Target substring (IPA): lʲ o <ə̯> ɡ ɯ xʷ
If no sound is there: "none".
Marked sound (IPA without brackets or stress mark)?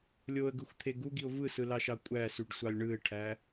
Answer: ə̯